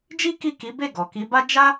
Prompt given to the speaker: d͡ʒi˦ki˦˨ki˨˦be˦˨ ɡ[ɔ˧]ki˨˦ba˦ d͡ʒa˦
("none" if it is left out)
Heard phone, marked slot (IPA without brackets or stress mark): ɔ˨